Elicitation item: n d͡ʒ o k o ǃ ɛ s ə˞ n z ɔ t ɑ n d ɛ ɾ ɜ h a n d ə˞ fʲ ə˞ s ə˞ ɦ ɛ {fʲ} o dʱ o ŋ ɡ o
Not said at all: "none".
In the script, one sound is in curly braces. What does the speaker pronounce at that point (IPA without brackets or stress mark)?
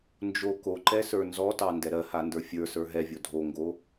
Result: vʲ